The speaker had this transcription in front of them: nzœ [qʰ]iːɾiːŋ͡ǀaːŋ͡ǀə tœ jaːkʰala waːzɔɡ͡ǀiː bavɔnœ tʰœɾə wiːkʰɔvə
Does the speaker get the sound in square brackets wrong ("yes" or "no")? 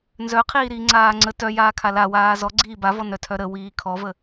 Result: no